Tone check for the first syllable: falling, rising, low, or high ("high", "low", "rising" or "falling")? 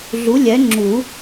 rising